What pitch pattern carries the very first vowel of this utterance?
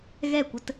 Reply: falling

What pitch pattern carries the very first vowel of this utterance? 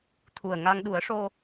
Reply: low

